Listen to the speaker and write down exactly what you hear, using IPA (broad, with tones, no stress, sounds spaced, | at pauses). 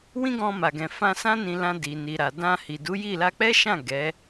w ĩ˦ ɡ ɔ̃˧ m a˨ ɡ ɛ̃˨ f ã˧ s ã˦ n ĩ˧ l ã˧ d i˨ n i˨ ɾ a˨ d ã˧ h i˨ d u˨˦ j i˦˨ l a˧ k͡p ɛ˦ ʃ ã˦˨ ɡ ɛ˨˦